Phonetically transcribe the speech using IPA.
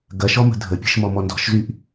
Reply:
ɡ ɐ ʃ ɔ m ə̤ dʱ ə pʲ ə̤ ʃ m ɔ m ɔ n d ɔ̤ ʃ z y ʔ

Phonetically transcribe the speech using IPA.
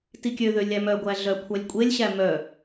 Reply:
t i kʲ ø ð ø lʲ æ m œ ɡʷ æ ɮ œ kʷʰ æ lʲ kʷʼ e lʲ ɕ æ m œ

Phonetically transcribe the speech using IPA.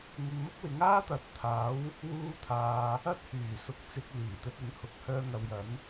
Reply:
ŋ ɪ˧ ŋ m ʊ˥ k̚ w ɪ˨˥ ŋ aː˥ t̪ ɐ˨˥ t̚ t̪ʰ aː˨˥ w | w uː˥ t̪ʰ aː˧ | ɐ˥ t̚ h yː˨˩ s ʊ˨˥ k̚ t͡s ɪ˧ k̚ l iː˨˩ t̪ ɵ˧ t̚ ɪ˨˥ ŋ h ʊ˨˥ k̚ h œː˧ ŋ ɐ˨ w j ɐ˨˥ n

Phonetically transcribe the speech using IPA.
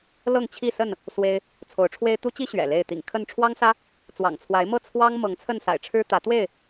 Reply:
l ɤ˥˨ ŋ t͡ɕʰ i˥˨ s ə˥˨ n | s w e˦ ɪ̯ | t͡sʰ o˨˦ ʊ̯ ʈ͡ʂʰ w e˦ ɪ̯ t̪ u˦ t͡ɕ i˦ ɕ ɥ ɛ̰˨˩ l e˥˨ ɪ̯ t̪ ḭ˨˩ ŋ kʰ ə˥˨ n ʈ͡ʂʰ w ɑ˦ ŋ s ä˦ | t͡s w ɑ̰˨˩ ŋ t͡sʰ w a˨˦ ɪ̯ m ɤ˥˨ t͡sʰ w ɑ˦ ŋ m ɤ˨˦ ŋ t͡sʰ ə˥˨ n s a̰˨˩ ɪ̯ ʈ͡ʂʰ ɻ̩˦ t̪ ä˨˦ t̪ w e˥˨ ɪ̯

